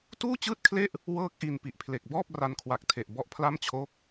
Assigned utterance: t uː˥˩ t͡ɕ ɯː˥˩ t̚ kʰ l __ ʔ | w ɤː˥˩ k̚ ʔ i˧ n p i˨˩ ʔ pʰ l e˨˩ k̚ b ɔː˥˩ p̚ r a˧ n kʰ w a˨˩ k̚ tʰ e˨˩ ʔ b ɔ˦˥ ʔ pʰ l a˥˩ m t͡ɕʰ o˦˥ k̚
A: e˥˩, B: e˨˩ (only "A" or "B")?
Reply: A